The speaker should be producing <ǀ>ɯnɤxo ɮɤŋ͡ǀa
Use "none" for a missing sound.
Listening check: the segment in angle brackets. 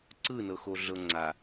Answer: ǀ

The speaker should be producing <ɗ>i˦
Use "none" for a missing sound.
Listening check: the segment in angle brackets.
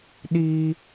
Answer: ɗ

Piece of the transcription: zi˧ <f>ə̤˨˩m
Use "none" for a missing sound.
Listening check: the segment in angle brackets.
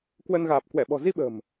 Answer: ɓ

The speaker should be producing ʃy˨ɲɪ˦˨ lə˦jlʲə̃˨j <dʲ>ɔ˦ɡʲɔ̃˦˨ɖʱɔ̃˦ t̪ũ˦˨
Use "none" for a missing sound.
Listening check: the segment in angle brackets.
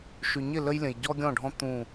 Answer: ɟ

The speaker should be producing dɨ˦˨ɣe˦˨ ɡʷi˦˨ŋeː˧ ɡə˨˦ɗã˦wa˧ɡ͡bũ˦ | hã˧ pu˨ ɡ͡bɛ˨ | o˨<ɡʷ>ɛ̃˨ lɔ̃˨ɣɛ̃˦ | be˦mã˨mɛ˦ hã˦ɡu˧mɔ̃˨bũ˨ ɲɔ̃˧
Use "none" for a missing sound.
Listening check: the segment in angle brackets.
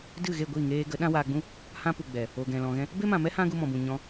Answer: ɡ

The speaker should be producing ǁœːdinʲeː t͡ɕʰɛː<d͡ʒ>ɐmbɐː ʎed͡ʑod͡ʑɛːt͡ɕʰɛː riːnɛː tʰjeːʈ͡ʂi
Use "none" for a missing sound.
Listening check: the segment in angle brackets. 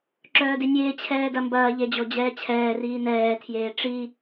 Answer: d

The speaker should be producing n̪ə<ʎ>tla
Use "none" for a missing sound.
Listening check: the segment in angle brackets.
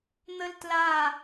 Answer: l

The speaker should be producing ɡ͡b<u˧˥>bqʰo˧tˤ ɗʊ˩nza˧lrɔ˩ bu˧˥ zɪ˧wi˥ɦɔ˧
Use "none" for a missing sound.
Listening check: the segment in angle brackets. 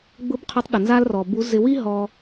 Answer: ʊ˧˥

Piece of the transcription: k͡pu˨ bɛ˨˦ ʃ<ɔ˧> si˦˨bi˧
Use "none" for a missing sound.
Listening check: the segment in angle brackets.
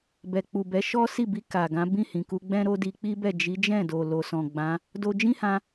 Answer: ɔ˦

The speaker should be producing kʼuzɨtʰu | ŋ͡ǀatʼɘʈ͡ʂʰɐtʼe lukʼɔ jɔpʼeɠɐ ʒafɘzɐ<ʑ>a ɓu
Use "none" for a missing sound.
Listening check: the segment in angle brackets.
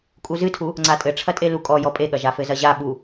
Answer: ʑ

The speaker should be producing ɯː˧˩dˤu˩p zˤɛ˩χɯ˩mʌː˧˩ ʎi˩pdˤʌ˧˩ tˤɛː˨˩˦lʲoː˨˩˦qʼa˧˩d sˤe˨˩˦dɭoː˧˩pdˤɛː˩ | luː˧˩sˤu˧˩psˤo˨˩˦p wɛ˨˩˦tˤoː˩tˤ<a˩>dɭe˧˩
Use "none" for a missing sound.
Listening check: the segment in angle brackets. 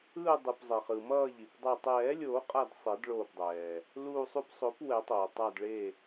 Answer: a˧˩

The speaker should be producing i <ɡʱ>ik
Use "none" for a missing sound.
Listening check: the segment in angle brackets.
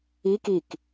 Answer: k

